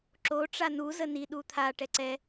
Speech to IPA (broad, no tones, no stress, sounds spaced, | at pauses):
ǁ o ʈ͡ʂ a n u z ə n i ɗ u t̪ʰ a ʈ ɛ ǀ ɛ